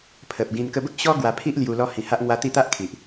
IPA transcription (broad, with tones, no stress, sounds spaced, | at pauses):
pʰ ə˨ p̚ ɡ ĩ˧ n k ə˧ b ə˦ k̚ ɕ ɔ˦ ɡ w a˧ pʰ i˦ ʔ l j u˧ l ɔ˦ h ĩ˧ h a˦ ʔ ŋ w a˦ t̪ i˥˧ t̪ a˦ ʔ kʰ i˨ ʔ